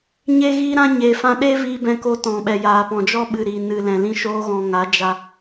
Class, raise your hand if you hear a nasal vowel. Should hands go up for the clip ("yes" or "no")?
yes